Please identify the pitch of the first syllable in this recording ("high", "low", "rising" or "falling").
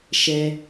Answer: high